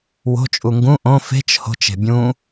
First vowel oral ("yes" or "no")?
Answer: yes